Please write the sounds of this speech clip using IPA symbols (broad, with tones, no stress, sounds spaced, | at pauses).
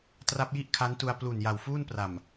t r a˦˥ p̚ j i˥˩ ʔ kʰ a˦˥ n t u˧ a̯ p l u˨˩ n j a˨˩ w f uː˥˩ n p r a˨˩ m